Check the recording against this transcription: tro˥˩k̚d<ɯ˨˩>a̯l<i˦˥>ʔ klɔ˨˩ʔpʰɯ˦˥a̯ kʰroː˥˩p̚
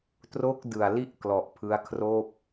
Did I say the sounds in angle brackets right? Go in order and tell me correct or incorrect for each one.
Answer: correct, incorrect

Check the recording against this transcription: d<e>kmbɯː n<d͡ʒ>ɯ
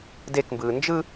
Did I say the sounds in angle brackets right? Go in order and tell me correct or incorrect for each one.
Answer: correct, correct

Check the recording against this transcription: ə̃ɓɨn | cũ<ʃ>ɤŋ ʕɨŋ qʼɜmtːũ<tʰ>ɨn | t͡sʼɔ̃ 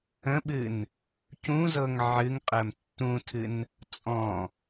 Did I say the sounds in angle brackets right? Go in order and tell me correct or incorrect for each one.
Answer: incorrect, correct

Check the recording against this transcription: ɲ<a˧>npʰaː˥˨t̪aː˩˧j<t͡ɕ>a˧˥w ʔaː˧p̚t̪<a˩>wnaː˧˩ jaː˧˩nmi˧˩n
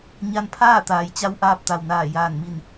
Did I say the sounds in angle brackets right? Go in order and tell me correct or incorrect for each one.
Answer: correct, correct, correct

